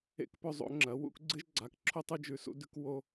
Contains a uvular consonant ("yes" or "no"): no